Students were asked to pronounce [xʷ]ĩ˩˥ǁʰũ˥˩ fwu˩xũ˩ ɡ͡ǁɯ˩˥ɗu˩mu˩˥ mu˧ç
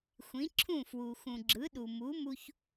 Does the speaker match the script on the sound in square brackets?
yes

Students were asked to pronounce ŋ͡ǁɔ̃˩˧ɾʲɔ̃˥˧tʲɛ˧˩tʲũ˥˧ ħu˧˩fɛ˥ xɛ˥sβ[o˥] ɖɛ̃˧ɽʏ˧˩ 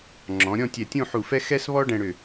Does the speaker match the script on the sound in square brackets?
no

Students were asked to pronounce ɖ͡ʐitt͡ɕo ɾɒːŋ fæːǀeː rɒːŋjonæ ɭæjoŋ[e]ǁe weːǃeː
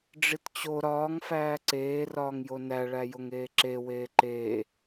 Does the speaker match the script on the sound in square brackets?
no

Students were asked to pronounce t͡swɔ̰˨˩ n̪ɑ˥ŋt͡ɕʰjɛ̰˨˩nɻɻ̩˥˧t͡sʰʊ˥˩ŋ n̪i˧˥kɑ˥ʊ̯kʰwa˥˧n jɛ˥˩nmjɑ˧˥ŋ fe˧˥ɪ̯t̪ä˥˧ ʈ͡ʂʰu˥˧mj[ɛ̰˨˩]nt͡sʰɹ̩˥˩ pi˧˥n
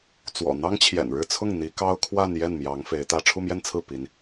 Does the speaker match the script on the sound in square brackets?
no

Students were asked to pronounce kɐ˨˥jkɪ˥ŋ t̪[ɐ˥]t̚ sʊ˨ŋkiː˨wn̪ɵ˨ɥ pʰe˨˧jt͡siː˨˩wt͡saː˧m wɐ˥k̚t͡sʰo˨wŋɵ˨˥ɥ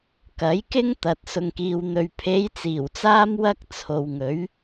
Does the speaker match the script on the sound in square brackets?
no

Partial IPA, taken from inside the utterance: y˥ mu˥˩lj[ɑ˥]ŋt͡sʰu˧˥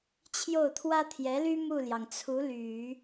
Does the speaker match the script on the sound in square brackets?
no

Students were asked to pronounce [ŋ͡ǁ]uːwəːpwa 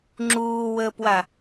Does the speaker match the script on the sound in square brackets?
yes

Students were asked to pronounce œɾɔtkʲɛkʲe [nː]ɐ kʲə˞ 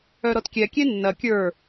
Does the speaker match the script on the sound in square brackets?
yes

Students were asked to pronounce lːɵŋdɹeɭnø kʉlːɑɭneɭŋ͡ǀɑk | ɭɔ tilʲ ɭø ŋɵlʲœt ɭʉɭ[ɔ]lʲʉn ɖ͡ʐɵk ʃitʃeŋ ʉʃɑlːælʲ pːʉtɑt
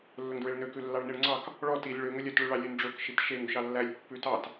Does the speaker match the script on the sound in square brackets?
no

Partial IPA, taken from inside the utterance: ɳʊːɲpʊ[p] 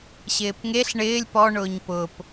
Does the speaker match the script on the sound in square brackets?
yes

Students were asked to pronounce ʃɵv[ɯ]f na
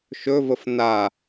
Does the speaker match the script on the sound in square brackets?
no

